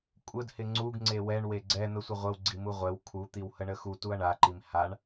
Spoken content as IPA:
kʷʼ ə d h ɪ ŋ͡ǀ u ɡ ŋ͡ǀ e w ɛ ɳ w e ɡ͡ǀ ɛ n̪ ə sʷ ɪ ʁʷ ə w ɡ͡ǀ i m u ʁʷ ɛ w kʰ u t̪ i w h ə ɳ ə x u t u ɐ̯ ɳ a ǃ i m h a ɳ

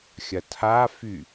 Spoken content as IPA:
xʲ ɐ tʰ a f y

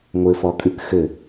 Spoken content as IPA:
ŋʷ ɘ f ɔ kʼ ɨ k x ɘ

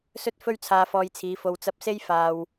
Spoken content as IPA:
s ɵ˥ t̚ f ɵ˥ ɥ t͡sʰ aː˧ f ɔː˧ j t͡sʰ iː˨˧ f o˧ w t͡s ɐ˧ p̚ s e˥ j f aː˧ w

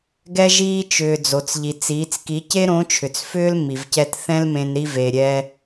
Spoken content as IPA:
ɡ ɛ˧ ʒ iː˧ t͡ʃ ʏː˩ d͡z o˩ t͡s ʎ i˩ t͡s iː˩˧ t͡s k i˩˧ c e˥ ɾ õ˧˥ t͡ʃʰ ʏ˩ t͡s f ʏː˥ l m i˩ v c ɛ˧ t θ ɛ̃˥ l m ẽ˧ n ɾ i˧ v e˩ ɾʲ ɛː˧

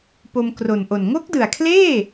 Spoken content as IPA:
p o˧ m k r o˨˩ n ʔ o˨˩ n ŋ o˦˥ k̚ d ɯ˨˩ a̯ kʰ l eː˥˩

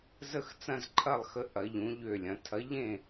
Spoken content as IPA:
z ə˥˧ x t͡s ɐ̃˥˧ z ǃʰ ɐ˥˧ lˠ x ə˧˥ ʔ ɐ˧˥ ʎ ũ˧˥ ʎ ø˥˧ lʲ ɐ̃˧˥ tʰ ɐ˧˥ ʎ ẽ˥˧

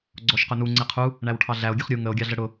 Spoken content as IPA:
ɡ͡ǀ ɔ ʃ q ʊ n u ŋ͡ǀ ɪ qʰ u | ɳ æ w ʈʰ ɑ ɮ æ o̯ ɡʲ ə χ ɾʲ u ŋ ə o̯ ɡʲ ɑ ɮ ə ɽ ʊ

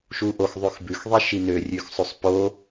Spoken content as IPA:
ʃ u ʔ o x ðˤ ʉ x b ʉ x ðˤ i ʃ i n ø rʲ ʉ x sˤ ʉ sˤ p o

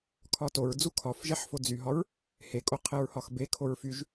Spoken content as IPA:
kʰ ɒ t o ɹ d͡z u kʰ ɒ f ʒ ɛ ħ f o d͡z y ɦ ɒ ɹ | h e kʼ o qʰ e ɹ h ɒ x b e kʰ o ɹ f y ʒ

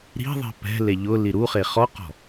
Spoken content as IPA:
ɾ i̤ ðˤ i̤ p ɛ̤ l e ʎ ʊ l i ɾ u χ e χ ɔ q ɔ̤

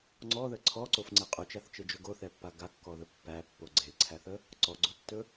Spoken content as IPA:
ŋ͡ǀ ɔ ð ə ǀʰ ɔ ǀ o f ŋ͡ǀ e qʼ ɵ t͡ʃ a θ t͡ʃ e d͡ʒ ɵ ɡ o θ ɛ pː a ɡ a kː ɔ ð ə pː æ pː o ɡ͡ǀ e ǀʰ æ θ ə | ǀ ɔ ɡ͡ǀ o tː ɵ

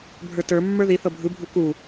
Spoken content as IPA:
bʱ ə˞ t ə˞ mː ə˞ ð i θ ɤ bʱ ɯ bʱ u k u

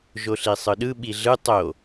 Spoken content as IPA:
ʒ o ɬ i sˤ ɯ ɗ ɯ ɓ i ɮ ɯ tˤ o

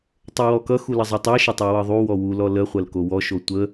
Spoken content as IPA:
tˤ ə w ɔ k ʌ x u l ə zˤ ɐ tˤ ɤ ʃ ɐ tˤ u w ɤ ðˤ u w ɔ w u l ɔ l ə χʷ ɐ l k o w ɔ ʃ o tʷ ə

